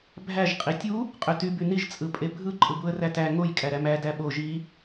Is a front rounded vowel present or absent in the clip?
present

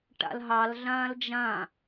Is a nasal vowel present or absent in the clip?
present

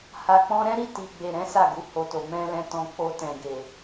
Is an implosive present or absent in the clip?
absent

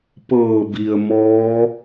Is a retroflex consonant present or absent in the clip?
absent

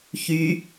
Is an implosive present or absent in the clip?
absent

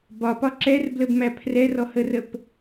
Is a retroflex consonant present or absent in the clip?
absent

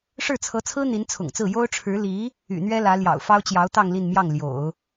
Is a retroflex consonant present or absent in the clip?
present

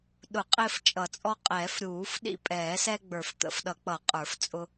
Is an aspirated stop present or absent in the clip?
absent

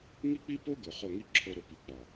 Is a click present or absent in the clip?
present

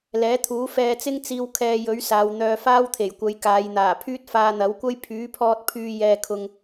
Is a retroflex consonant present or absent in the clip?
absent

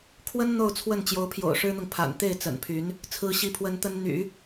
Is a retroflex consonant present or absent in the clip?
present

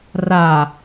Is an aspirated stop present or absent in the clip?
absent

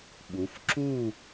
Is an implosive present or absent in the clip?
present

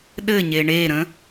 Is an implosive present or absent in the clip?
present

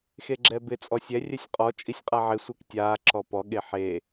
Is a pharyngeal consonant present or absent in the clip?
present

